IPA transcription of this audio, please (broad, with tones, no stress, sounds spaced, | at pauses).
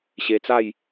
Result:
ɕ e˧ t͡s a˥˧ j